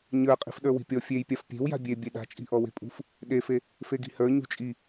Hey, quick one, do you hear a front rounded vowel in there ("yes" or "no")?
no